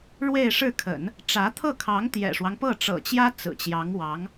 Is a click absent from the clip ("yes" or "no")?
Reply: yes